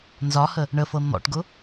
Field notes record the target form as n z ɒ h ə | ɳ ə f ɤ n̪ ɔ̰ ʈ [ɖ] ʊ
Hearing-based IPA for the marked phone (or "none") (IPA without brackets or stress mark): ɡ